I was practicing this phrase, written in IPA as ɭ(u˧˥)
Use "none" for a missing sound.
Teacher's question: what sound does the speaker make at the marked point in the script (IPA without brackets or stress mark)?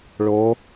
o˧˥